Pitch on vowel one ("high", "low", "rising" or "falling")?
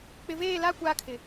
low